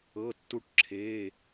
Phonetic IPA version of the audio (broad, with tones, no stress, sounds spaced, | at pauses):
ɤ˩˧˩ tː u˦ ʈ ǁʰ eː˩˧˩